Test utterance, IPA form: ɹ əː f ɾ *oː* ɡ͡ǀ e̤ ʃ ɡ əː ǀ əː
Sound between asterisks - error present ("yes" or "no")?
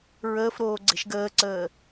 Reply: no